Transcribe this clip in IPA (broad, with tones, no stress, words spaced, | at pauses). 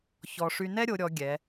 çɔ˧ ʂy˧nɛ˥ɾʲo˩˧ ɾʲɔ˩˧ ɡʲɛ˩˧